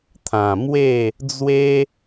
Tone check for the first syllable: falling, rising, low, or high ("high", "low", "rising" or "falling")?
low